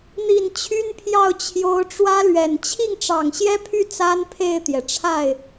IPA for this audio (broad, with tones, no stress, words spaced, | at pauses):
n̪i˨˩n t͡ɕʰy˥npʰjɑ˥˩ʊ̯ t͡ɕʰjo˧˥ʊ̯ʈ͡ʂwä˥lɥɛ˨˩n t͡ɕʰi˥˩ŋʈ͡ʂɑ˨˩ŋɕjɛ˥pʰy˥˩ t͡sa˥npʰe˥˩ɪ̯t̪jɛ˩ʈ͡ʂʰa˥˩ɪ̯